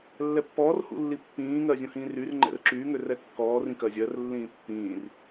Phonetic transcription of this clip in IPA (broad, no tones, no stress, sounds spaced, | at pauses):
lː ɛ pː ɔː r h ṵ lː i pː ĩː ŋ ɜ zʲ ũ h ĩː r y r ŋ͡ǃ ɛ̰ r ǁ yː ŋ ø r ɛ kː ɔː r ĩ k ɜ zʲ ɜ r lː ĩː pː ĩː r